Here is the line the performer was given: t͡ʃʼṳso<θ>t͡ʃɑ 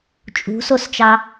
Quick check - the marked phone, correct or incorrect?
incorrect